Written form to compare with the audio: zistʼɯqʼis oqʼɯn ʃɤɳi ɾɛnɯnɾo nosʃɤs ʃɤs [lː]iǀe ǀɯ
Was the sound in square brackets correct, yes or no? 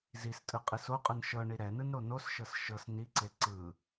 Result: no